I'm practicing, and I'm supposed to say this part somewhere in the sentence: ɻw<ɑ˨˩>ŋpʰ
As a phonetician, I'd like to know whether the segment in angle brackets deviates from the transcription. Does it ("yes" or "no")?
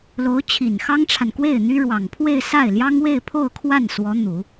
no